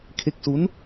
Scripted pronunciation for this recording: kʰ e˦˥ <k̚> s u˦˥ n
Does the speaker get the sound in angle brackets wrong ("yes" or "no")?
no